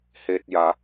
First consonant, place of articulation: glottal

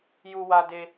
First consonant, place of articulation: palatal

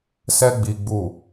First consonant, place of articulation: alveolar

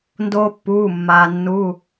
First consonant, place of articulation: alveolar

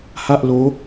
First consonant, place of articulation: glottal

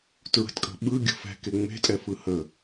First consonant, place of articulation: alveolar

